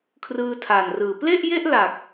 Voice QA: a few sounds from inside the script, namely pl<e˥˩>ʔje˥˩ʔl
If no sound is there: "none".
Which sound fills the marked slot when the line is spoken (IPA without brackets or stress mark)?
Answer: e˥˩